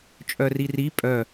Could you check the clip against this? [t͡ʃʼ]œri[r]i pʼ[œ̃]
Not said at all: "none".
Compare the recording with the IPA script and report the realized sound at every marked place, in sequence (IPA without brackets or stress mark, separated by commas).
t͡ʃʼ, r, œ